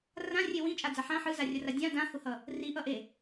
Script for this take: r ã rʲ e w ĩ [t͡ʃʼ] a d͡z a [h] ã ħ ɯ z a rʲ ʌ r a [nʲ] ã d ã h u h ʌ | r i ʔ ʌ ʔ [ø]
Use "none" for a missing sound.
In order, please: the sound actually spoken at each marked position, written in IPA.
t͡ʃʼ, ħ, dʲ, e

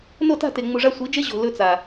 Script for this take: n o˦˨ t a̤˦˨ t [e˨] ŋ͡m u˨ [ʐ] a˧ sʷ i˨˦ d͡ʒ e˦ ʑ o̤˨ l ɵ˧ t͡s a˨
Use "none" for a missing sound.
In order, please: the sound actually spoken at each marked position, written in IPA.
e˨, ʐ

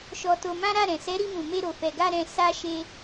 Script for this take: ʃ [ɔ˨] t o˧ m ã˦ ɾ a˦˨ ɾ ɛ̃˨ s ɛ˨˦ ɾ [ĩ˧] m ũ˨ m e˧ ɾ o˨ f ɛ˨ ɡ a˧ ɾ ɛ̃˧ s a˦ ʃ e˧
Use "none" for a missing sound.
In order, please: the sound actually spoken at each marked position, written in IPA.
ɔ˧, i˧

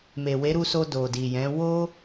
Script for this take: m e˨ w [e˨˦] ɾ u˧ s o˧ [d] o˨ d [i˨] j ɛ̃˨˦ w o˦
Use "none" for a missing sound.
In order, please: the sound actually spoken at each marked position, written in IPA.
e˨˦, d, i˨

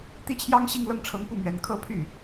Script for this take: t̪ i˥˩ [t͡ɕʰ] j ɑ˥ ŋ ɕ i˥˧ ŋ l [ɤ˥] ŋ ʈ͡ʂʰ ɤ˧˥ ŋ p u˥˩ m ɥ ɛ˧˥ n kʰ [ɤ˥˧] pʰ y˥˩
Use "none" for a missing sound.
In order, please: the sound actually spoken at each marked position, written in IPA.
t͡ɕʰ, ɤ˥˩, ɤ˥˧

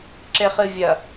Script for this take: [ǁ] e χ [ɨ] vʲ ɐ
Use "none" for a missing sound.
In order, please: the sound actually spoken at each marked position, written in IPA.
ǁ, ɨ

